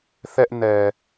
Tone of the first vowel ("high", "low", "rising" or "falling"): high